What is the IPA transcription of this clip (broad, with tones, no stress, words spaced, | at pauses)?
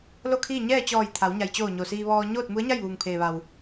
lo˥˨kʰiː˥˨ ɲɛː˥˨t͡ɕɔː˧˩j t̪ʰa˩˧w ɲa˩jt͡ɕoː˧˩ ɲo˩siː˧ ʋɔː˧ ɲoː˥˨t̚mu˧˥ə̯ɲa˥˨jʋuː˩ŋ pʰeː˩ʋa˩w